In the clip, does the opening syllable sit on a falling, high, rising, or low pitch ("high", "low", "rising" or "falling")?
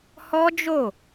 high